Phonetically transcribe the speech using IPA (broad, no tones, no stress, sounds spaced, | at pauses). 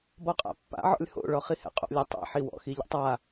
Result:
b ɔ qʼ a̰ pː a̰ ʕ ɔ̰ lʲ h o̰ ɭ ɔ χ i h ɛ̰ qʼ o̰ lʲ ɛ tˤ ɛ̰ ħ i w ɔ̰ x i ʎ ɛ̰ tˤ a